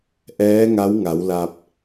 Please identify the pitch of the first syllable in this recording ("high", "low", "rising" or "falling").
rising